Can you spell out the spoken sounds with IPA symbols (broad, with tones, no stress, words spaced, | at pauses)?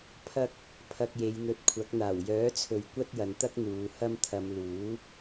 pʰɐ˥k̚ | pʰɐ˧k̚je˨˧jn̪ɵ˨˥t̚kʷʰɐ˨˥k̚ n̪aː˨˩wjœː˨˥t͡sʰɵ˨ɥ kʷɐ˥t̚jɐ˨˧nt̪ɐ˥k̚ n̪uː˨˧hɐ˥mt̪ʰɐ˧m luː˨˥